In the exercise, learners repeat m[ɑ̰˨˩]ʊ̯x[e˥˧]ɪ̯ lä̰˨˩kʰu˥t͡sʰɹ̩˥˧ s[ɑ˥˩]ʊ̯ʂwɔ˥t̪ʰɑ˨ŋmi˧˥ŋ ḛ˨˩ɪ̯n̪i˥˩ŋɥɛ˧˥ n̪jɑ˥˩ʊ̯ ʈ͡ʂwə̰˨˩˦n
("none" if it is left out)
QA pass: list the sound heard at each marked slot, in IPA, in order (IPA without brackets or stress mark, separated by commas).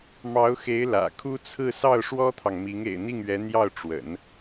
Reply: ɑ˧˥, e˧˥, ɑ˥˩